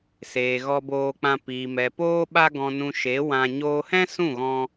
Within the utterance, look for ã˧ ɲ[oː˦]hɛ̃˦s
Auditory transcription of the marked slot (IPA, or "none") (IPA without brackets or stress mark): oː˧